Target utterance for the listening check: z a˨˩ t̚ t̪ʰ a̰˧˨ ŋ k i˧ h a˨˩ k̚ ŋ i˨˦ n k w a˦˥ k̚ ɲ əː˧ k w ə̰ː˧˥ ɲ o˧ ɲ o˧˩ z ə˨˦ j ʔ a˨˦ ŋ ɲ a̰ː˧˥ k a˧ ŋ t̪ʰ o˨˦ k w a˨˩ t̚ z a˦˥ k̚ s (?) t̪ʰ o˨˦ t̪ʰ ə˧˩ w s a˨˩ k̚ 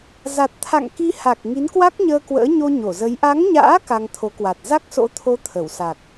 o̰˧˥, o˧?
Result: o̰˧˥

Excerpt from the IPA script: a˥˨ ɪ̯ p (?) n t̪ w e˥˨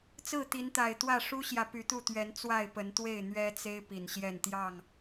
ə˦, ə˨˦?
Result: ə˨˦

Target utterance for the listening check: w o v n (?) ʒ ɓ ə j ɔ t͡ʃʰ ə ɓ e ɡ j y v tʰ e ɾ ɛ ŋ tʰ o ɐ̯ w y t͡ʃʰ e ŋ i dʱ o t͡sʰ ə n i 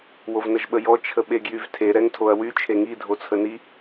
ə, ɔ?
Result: ə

